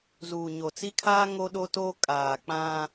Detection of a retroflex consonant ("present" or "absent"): absent